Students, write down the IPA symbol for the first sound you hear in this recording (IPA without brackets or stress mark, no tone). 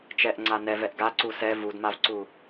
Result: t͡ʃ